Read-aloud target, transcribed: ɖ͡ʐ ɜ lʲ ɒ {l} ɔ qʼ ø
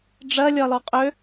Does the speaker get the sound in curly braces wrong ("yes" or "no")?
no